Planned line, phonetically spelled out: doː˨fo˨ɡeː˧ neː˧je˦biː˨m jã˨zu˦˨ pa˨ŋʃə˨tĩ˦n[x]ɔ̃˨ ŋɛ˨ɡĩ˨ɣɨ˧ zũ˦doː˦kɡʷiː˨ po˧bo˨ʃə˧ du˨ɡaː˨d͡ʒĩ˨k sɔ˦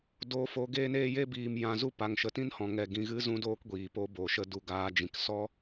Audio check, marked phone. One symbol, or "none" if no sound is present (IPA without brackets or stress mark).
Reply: h